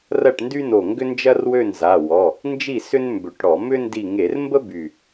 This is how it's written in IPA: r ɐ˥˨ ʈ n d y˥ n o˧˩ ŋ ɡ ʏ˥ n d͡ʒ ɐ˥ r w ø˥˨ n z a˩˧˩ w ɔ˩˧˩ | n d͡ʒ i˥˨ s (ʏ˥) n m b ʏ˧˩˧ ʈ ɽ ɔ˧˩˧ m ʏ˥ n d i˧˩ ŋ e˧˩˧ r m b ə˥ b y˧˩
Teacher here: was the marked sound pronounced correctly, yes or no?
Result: yes